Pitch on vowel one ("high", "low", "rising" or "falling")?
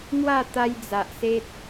falling